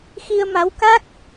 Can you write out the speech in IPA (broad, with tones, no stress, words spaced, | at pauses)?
xi˧ə̯ma˨˦wka˦˥k̚